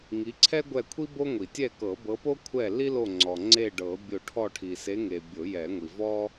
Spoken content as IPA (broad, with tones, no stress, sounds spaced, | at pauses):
ŋ i˨˦ ǀʰ ɛ˥ ɡʷ ɛ˦˨ kʷʰ i˥ b o˥ ŋʷ i˨˩˦ tʲ ɛ˦˨ k ɤ˨˩˦ b ɤ˨˦ p o˥ kʷʰ ɛ˦˨ l i˥ l o˦˨ ŋ͡ǀ ɔ˨ ŋ͡ǀ e˦˨ ɖ ɤ˨˩˦ bʲ o˦˨ ʈʰ ɔ˦˨ ʈʰ i˨ s e˨˦ ŋ e˨ bʲ o˨˩˦ j ɛ˨˩˦ ŋʷ i˨ v ɔ˥